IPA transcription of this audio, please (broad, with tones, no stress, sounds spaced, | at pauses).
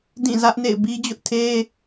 d ĩ˦˨ z ä˦ ʔ n ḛ˦˨ ɪ̯ b i˦ d͡ʑ ʊ˦ ʔ tʰ e˦